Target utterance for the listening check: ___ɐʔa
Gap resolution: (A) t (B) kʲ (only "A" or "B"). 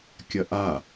B